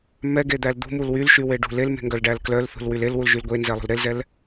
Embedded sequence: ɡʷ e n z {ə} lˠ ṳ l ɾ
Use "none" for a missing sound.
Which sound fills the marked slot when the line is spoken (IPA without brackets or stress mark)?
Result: ɛ